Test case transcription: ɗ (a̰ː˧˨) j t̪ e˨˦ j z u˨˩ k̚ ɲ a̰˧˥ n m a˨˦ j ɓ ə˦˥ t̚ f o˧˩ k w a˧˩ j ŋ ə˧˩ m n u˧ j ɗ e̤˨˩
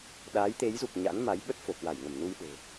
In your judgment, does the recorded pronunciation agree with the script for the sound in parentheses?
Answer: no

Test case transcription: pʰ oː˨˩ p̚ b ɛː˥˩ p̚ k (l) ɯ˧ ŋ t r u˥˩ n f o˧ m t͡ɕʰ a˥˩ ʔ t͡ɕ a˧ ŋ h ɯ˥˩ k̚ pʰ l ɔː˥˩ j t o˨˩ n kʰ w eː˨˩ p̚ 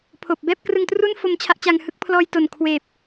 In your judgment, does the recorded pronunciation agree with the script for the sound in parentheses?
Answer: no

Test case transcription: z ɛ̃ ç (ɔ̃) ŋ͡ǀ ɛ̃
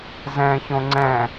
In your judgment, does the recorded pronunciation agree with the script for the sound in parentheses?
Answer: no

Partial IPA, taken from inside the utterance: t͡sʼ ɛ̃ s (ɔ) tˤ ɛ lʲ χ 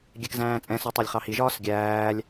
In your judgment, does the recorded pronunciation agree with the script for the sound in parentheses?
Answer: yes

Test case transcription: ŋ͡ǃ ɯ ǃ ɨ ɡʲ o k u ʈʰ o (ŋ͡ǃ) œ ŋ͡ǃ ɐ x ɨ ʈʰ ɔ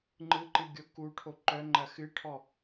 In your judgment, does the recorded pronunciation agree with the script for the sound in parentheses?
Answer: no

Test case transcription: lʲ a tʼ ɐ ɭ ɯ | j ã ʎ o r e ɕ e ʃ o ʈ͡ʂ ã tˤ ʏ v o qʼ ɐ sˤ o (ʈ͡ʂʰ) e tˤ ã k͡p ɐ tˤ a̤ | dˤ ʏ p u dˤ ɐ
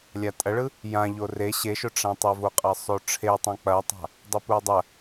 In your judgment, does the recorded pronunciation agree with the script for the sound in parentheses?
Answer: yes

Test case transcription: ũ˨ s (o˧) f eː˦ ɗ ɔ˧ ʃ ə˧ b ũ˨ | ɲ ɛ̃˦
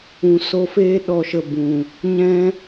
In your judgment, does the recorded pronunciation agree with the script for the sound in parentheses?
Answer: yes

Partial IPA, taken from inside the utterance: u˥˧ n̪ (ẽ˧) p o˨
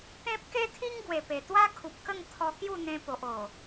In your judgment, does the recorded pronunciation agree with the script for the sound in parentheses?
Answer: yes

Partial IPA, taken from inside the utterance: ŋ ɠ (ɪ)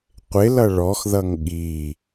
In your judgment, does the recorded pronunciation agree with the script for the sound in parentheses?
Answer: no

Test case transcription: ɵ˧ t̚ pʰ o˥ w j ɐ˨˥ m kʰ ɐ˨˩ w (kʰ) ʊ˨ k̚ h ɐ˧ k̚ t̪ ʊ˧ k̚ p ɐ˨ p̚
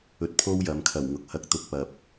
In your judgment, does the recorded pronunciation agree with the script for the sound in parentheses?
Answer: no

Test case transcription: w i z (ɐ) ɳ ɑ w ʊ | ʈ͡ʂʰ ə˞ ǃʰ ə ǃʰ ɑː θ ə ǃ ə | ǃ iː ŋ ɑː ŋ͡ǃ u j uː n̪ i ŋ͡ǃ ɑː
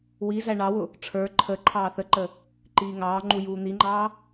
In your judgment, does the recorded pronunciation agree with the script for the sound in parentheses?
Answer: no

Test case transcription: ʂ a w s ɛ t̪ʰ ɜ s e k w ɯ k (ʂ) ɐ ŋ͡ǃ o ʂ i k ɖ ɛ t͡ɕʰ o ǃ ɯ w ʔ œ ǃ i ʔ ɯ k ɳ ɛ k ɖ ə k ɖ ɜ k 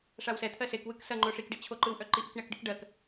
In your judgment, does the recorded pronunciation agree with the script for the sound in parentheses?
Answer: no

